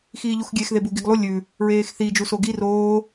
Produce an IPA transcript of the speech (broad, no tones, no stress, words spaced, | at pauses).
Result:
xiːʎuxɡʲexðe buɡiɡlˠu lʲʉ | ɹeːxθid͡ʒu soɡi roː